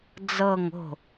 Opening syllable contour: falling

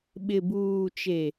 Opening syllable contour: low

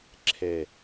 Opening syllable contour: falling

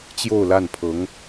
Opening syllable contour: falling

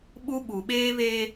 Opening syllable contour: high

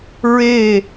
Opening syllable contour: falling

